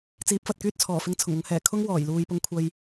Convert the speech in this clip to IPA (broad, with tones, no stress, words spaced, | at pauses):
t͡siː˨˥p̚fɐ˨t̚kyː˥t̚t͡sʰɔː˨˩ fɪ˧ŋt͡sʰʊ˨˩ŋʊ˨˧ŋhɛː˨˩ kʰʊ˥ŋ wɔː˨˩j luː˨jpʊ˧ŋ kʷʰɐ˧j